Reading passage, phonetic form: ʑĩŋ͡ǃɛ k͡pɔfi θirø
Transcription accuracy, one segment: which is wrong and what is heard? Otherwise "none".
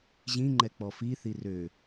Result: none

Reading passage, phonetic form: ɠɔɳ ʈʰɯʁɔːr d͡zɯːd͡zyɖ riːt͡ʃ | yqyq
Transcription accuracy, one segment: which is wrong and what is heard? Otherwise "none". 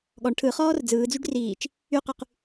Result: ʁ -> χ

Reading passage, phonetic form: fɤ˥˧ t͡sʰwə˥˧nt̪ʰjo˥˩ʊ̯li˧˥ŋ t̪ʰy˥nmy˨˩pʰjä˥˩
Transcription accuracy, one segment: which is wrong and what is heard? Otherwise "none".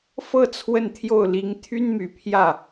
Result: none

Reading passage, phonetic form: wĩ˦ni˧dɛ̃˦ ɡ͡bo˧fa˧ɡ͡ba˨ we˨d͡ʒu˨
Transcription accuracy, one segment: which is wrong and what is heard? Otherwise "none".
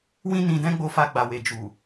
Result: i˧ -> ĩ˧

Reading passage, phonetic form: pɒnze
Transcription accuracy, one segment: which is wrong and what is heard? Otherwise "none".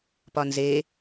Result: none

